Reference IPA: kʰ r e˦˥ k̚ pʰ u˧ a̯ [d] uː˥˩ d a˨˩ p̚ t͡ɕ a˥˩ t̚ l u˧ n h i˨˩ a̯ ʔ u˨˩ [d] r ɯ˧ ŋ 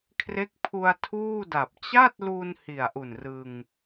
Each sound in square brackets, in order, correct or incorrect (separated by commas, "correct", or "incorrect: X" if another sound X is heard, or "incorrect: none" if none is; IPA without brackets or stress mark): incorrect: tʰ, incorrect: n